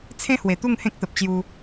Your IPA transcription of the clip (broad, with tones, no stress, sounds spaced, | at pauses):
t͡sʰ ẽ˦ h w e˨˩ t̪ u˥˧ ŋ h ẽ˦ k̚ t̪ ə˨ p̚ t͡ɕ j u˧